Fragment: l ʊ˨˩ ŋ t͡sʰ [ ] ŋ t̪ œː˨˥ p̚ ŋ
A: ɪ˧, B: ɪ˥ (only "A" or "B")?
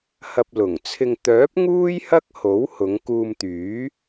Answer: A